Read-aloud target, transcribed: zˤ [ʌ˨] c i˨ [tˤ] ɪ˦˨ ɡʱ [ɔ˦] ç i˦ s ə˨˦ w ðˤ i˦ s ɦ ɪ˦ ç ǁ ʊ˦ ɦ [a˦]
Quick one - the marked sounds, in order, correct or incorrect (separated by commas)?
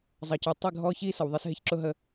correct, correct, correct, incorrect